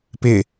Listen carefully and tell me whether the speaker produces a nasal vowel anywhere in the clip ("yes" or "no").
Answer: no